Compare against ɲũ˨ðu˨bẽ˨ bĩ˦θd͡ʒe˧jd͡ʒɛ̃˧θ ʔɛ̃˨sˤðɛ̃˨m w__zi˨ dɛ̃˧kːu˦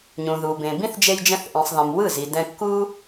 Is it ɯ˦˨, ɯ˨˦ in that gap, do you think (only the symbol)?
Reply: ɯ˦˨